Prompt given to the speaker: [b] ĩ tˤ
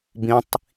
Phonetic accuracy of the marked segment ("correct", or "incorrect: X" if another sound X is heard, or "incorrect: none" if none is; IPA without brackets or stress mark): correct